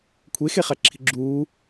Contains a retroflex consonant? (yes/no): no